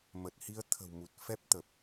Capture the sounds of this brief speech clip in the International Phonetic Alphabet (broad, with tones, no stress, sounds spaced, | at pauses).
m ə˨˩ t̚ h i˧ ə̯ t̪ʰ ə̤˨˩ w m u˨˩ t̚ f ɛ˦˥ p̚ t̪ ə˨˩ p̚